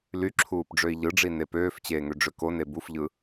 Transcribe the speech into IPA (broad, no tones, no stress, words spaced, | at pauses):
ly ǁʰuːpɖ͡ʐøi̯ʎɯɖ͡ʐi nepøːft͡ɕeː ŋøɖ͡ʐøkone bufʎɯ